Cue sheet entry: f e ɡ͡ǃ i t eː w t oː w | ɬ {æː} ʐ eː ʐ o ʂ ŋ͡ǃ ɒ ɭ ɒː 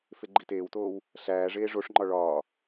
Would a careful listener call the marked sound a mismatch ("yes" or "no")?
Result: no